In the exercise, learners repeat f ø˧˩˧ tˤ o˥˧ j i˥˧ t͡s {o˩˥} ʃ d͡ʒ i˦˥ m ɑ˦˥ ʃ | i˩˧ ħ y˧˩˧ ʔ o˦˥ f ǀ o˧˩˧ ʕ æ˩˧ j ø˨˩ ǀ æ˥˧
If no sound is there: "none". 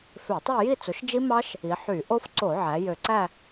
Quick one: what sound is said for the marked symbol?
o˩˥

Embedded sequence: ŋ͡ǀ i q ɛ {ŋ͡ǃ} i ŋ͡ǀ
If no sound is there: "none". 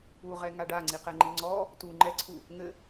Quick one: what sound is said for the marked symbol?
ŋ͡ǃ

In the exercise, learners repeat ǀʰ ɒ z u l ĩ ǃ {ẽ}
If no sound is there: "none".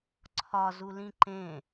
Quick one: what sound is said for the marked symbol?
ẽ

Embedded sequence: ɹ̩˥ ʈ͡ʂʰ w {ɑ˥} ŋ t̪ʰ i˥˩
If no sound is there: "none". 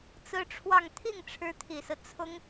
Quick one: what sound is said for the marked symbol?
ɑ˥˧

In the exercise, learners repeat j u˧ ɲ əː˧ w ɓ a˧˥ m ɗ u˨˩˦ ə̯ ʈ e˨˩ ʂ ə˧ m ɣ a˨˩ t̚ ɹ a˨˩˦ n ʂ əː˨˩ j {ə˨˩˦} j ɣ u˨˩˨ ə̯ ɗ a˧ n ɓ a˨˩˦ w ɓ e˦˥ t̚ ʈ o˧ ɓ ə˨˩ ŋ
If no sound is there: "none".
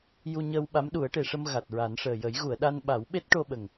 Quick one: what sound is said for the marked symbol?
ə˨˩˦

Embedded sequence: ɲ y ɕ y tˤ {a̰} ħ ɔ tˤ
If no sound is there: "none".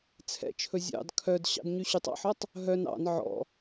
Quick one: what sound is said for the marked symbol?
ɑ̰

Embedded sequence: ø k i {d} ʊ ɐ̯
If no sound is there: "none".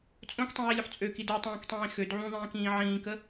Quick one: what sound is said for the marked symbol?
d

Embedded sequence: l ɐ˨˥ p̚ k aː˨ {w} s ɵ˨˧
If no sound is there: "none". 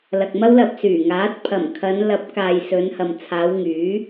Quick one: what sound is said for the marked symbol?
j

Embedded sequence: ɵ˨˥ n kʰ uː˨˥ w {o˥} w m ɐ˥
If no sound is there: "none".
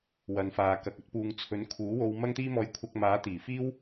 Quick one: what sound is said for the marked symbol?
o˧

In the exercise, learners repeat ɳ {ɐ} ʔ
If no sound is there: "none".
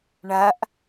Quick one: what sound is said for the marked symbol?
ɐ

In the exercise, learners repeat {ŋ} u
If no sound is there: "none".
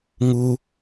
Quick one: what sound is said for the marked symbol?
ŋ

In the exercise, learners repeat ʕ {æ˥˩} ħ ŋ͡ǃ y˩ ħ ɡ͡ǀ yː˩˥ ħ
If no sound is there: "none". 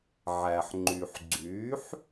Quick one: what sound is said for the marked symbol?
æ˩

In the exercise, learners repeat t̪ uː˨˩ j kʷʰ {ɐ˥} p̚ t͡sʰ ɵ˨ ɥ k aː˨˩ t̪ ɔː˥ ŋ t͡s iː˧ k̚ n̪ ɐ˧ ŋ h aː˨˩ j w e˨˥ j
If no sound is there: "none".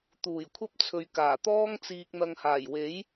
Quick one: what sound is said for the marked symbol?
ɐ˥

